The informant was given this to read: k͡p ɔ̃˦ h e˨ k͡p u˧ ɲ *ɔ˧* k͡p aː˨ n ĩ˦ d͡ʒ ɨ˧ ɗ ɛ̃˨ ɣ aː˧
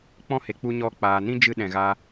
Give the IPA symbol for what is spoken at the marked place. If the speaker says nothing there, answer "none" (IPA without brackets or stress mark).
ɔ˧